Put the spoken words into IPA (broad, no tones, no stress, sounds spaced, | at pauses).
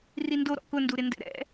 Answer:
r i n d o ɾ ɔ̰ k ʊ n d u ɾ ɪ n d ɛ̰ ɾ ɛ̰